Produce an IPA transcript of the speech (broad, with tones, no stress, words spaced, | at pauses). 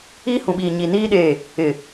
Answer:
iː˦hũ˨ɓiː˨ɲi˨ niː˦ ɗeː˦˨ | ɪ˨